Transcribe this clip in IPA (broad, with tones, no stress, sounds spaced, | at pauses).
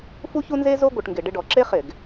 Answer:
f u˥ ç u˥ n z e˥ z o˥ ɡʷ ɘ˧˩˧ ʈ ŋ ɡ ɪ˧˩˧ ɖ ɪ˧˥˧ ɖ ɔ˧˩˧ ǁ e˥ χ ɪ˧˩˧ ɡ